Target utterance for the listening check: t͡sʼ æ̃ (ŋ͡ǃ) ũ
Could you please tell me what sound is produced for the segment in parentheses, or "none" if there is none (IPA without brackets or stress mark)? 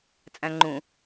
ŋ͡ǃ